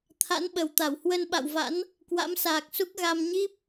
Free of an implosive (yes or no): no